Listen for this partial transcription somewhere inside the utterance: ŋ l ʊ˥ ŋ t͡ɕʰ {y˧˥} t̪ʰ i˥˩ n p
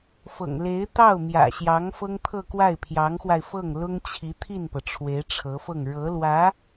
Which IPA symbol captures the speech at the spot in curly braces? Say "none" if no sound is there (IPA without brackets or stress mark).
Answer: i˧˥